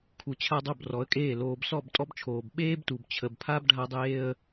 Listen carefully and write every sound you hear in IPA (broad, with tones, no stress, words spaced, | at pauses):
kʰu˨ t͡ɕʰa˦dˤo˦˨b rɔ˨˦ə̯kʼeː˦˨ loː˨bsɔ˦˨b tʼɔ˦bt͡ʃʰoː˨b ɓeː˦btu˨bt͡ɕʰə˨bpʰa˦b ɖʱa˦dˤeː˦ə̯